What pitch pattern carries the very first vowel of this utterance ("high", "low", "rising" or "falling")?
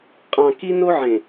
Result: low